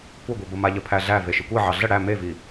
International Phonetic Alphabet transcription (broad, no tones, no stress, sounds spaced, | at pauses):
kʷ ə ɡʷ i b ə m a ʎ ə pʰ æ ɮ æ v e ʃ ɘ kʷ i ʕ ɑ ɮ ə ɽ æ m e v i